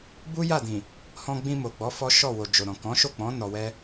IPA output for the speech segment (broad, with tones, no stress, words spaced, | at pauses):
bu˦ja˦˨dĩ˨ | hɔ̃˧ɡ͡bĩ˧mo˨ɡ͡bɔ˨˦ fɔ˦ ʃɔ˦˨wo˨ d͡ʒo˨ɾɔ̃˨ kɔ̃˨˦ʃo˦˨k͡pɔ̃˨˦ nɔ˧wɛ˦